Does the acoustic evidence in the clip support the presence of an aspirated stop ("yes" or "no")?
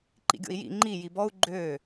no